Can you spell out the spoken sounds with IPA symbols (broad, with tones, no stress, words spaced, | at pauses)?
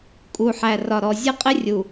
kʼu˨ħæ˨rɒ˨ ɾɔ˨zʲə˦˨qʼɪ˦rʲu˨